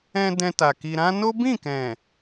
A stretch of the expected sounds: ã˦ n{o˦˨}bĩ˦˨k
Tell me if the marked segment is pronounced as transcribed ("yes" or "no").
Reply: no